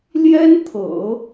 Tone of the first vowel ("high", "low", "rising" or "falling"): high